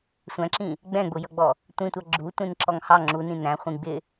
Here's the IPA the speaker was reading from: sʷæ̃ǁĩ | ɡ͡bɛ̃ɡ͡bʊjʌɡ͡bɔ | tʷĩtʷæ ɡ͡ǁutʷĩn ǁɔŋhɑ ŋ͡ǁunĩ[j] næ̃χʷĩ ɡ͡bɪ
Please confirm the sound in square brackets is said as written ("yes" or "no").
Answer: no